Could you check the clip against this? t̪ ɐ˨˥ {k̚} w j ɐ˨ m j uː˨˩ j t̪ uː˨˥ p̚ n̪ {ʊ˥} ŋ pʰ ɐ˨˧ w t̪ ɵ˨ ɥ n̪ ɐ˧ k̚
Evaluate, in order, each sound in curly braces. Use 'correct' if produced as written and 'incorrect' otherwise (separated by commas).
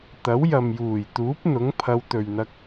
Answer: incorrect, incorrect